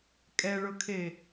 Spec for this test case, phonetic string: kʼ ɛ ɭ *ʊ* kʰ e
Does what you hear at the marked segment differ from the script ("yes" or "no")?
no